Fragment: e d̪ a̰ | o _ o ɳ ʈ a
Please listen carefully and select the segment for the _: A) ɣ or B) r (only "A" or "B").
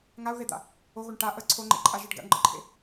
A